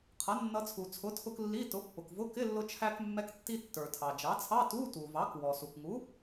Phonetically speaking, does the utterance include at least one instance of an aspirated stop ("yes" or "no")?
yes